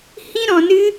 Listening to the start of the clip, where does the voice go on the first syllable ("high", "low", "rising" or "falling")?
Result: high